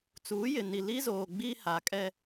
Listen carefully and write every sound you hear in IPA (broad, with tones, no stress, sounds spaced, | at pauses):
t͡s uː˨˦ j ɪ˨ n i˨ l i˦ z oː˨ ɡ͡b i˦ h a˨ kʼ ɛ˦